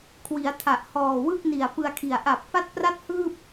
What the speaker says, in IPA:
kʰwi˩˦a̯tʰa˨˩ʔhɔː˨˩wɯ˥˩k̚ ni˨˩a̯pɯ˧a̯kʰi˨˩a̯ ʔa˨˩p̚fa˥˩t̚pra˥˩t̚hɯː˥˩p̚

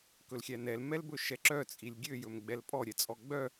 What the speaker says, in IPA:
kɵlxʲænɛl mɛlbɵʃɛǁœ t͡sʼilʲɡʲøj ɵmɡ͡bɛlpʼɔ ɾʲɛt͡sʼɔɡ͡bœ

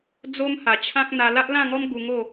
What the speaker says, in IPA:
d͡zo˦mha˨˩ t͡ɕʰã˦k̚n̪a˧ la˦ʔlã˥˧ŋɔ˦m ɡu˧ŋo˥˧

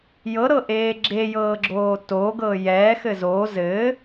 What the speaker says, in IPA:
jɤɾɤʔeː ɡ͡ǁejɤːɡ͡ǁoː toɡɤ jɛːxɘ zoː zɘː

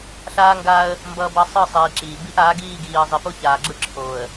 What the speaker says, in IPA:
ɬaː˦ŋɡaː˦ə̯ | mbʌː˦bʌ˦ sˤɯ˦˨sˤiː˨ǁiː˨bi˦ʔ aː˨˦ɡiː˦˨ɡiː˨ə̯ zˤi˨po˦ çaː˨ɡ͡ǁɯ˦ǁʰoː˨ə̯

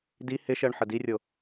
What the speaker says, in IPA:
di hɪʃɜɳ ħədirʲo

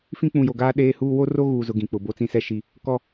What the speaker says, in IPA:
fĩ˦k͡pũ˨jo˨ɡaː˦ ɗeː˦huː˦ wo˦ro˦ɣuː˨zʊ˨ ɡĩ˨k͡pʊ˨ bo˦t͡sĩ˦sɛ˦ʃi˦ | kɔ˦

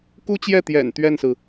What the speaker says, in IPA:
ku˥t͡ɕjɛ˥˩t̪jɛ̰˨˩n t̪ɥɛ˥˩nsɹ̩˩

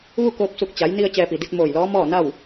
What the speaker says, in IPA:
ʋu˥˨koː˧p̚su˧˩k̚ t͡ɕa˩˧jni˧ə̯ t͡ɕɛː˧pi˩ di˧t̚ moː˧˩jlɔː˧˥ mɔː˥˨na˥˨w

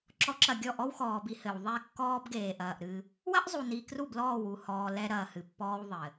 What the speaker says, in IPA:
ǁɔ˦ǁɐ˦˨ ɡʲɔ˦˨ʔɔ˦wxɔː˨bi˨ hɘ˨w ðˤɛ˦˨kːɔː˦bɡeː˨ʔɐː˨ʔ ɾɨ˦ | wɐ˦ʔzˤu˨ ni˨ kru˦˨blɔː˦˨wu˦˨hɔː˨ lɛ˦ɾɐː˨hɨ˨pːɔː˦w ðˤɘ˨

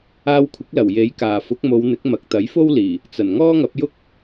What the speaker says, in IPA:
aː˧wkʷʰɪ˨˥k̚lɐ˨˩w je˨˥j kaː˨ fʊ˨˥k̚mo˨˧wn̪ɪ˨˥k̚ mɐ˨˥k̚ t̪ɐ˨˥jfo˥wliː˨˩ | t͡sɐ˨˩n ŋɔː˥ŋɐ˨˥p̚jʊ˥k̚

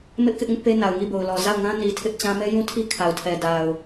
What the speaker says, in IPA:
mɪ˦ʔ kɪ˦ʔŋɪ˦ʔpe˦na˨ʊ̯ ŋi˦˨bo˨ʊ̯lɔ˨ za˦˨ʊ̯ŋã˦ ni˨ tʰɪ˦ʔt͡ɕã˦ mɛ˦jũ˦tʰi˦ kʰa˨ʊ̯tʰɛ˨ da˨ʊ̯

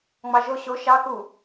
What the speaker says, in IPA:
ŋ͡mɑʒo ɕo ʃɑ ku

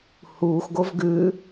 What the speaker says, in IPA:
huːxɡov ɡʉ

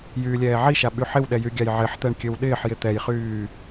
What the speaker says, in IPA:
jyːlʲɛːʕiʃa ɓyħɪwɗɛ jyɡʲajʕɪħt̪ɛɳ kʲøwɗɪːħjɪ t̪ɛjχyː

